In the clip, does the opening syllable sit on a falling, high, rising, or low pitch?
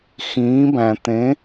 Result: rising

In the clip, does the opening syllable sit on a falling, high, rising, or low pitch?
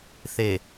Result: low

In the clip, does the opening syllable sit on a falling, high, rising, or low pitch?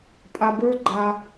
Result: low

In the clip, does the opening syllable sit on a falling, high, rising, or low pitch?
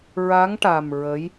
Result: rising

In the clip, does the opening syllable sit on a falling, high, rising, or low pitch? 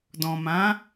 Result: low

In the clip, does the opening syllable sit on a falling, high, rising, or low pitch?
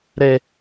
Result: high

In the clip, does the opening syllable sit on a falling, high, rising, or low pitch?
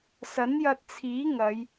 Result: rising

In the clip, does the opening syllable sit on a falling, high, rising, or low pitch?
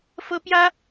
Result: high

